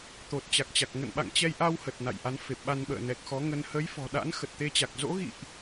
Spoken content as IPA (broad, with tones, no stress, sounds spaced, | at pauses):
t̪ o˨˩ t̚ t͡ɕ a˨˩ k̚ t͡ɕ a˨˩ k̚ ŋ ə̰˧˨ n ɓ a̰˧˨ ŋ t͡ɕ ɛ˧ j ʔ a˧ w h ə˨˩ t̚ n a̰˧˨ j ʔ a˨˦ n f e˨˩ p̚ ɓ a˧ n ɓ ə̰ː˧˨ n ɛ˨˩ k̚ x ɔ˨˦ ŋ ə˧ n h ə˨˦ j f ɔ̤˨˩ ɗ a̰˧˥ n x ə˨˩ t̚ t̪ e˧ t͡ɕ a˨˩ k̚ z o̰˧˥ ɣ ḭ˧˨ ʔ